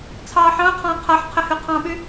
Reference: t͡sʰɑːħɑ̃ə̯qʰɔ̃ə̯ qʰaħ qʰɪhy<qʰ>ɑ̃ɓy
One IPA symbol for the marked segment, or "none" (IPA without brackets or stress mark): qʰ